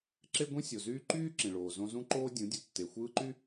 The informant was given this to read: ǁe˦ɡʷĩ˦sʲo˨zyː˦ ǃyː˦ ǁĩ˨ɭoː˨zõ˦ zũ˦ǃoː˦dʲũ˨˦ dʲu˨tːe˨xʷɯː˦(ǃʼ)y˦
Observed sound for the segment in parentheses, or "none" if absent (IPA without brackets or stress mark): ǃ